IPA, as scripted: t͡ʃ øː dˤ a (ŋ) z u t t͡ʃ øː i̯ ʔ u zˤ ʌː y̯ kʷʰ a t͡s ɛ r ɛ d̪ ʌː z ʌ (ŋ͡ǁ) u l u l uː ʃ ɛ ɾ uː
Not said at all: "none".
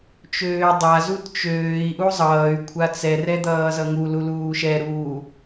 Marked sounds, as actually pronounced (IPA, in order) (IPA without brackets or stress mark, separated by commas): none, ŋ